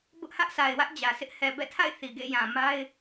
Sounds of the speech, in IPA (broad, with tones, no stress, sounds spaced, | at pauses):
b ʊ˦ ʔ h ä˦ ʔ sʰ a˨ ɪ̯ w ä˦ ʔ d͡ʑ ä˨ sʰ ɪ˦ ʔ h ɛ˨ b ɛ̰˦˨ tʰ a̰˦˨ ɪ̯ θ i˨ ɡ ḛ˦˨ j ã˨ m a˦ ɪ̯